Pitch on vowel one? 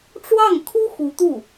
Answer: falling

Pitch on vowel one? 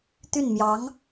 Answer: falling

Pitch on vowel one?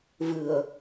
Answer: low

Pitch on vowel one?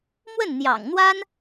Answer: falling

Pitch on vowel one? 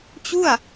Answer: falling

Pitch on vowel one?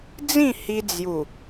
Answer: falling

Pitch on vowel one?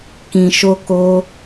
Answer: low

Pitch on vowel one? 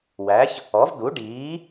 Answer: rising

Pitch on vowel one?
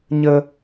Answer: high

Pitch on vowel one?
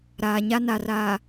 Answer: low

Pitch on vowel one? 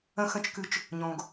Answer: low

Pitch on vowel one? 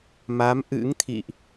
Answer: rising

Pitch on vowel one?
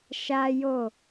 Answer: high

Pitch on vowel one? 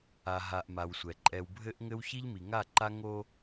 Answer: low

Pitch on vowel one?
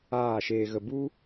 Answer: falling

